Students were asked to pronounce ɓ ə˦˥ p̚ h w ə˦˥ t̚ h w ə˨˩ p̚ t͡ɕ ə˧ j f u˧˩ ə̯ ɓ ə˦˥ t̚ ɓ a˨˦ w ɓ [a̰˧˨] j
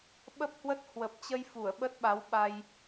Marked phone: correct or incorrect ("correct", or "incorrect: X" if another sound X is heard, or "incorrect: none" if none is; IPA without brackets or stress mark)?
incorrect: a˧